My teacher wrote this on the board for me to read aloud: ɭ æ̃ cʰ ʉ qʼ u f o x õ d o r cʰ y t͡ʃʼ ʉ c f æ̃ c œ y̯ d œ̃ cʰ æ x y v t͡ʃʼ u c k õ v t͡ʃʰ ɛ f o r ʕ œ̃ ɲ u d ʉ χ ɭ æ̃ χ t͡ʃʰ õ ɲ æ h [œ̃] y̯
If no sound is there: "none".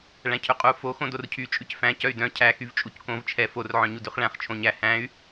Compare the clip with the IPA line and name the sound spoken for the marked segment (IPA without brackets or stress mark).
æ̃